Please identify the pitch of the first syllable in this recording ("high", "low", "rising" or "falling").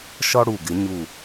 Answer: high